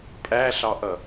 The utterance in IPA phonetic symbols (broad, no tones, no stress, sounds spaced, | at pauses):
pʼ æ ɬ ɑ ʔ ʌ